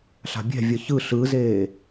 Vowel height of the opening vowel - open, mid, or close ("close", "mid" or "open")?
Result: open